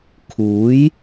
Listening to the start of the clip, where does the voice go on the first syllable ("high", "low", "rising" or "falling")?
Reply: rising